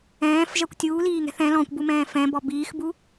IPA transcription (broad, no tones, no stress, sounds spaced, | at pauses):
ɛ̃ː f ʒ ɜ kʷ tʲ uː l iː ŋ ɛ̤ θ ɛ̃ l ɔ̃ kʷ b u m ɛ̃ː f ɛ̃ b ɔ b iː x b u